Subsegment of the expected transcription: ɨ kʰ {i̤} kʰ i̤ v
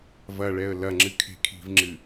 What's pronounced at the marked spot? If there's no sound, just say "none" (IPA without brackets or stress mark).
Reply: e̤